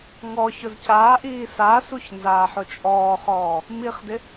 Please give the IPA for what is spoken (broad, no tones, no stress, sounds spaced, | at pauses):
ŋ ɔ ç ʊ z c aː ʔ iː s a s u ç n z aː ħ ʊ t͡ʃʼ ɔː χ ɔː | m i χ d ɪ